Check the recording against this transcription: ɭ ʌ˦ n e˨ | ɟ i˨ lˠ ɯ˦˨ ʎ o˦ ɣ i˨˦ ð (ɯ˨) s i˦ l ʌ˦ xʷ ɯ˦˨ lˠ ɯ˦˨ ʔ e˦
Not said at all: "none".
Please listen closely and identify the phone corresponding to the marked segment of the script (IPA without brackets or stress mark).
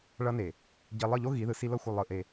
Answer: ɯ˨